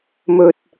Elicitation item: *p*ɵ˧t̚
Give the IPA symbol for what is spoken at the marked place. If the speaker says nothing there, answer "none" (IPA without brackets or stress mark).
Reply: m